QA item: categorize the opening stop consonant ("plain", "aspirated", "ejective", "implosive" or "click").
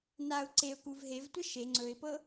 click